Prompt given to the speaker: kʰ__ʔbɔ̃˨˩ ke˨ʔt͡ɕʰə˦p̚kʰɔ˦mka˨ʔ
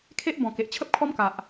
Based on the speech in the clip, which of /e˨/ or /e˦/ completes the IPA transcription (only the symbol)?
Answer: e˦